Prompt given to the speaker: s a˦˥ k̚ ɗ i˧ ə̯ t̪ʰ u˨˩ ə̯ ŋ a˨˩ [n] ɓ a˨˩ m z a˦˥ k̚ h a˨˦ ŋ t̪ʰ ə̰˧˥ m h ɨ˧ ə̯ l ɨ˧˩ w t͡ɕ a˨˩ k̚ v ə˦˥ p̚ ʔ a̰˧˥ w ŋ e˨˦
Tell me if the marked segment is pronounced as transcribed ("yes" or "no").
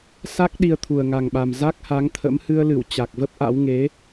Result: no